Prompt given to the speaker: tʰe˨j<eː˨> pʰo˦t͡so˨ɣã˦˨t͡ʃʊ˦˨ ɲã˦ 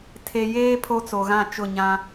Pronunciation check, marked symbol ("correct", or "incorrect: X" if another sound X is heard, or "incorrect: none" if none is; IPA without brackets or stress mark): incorrect: eː˦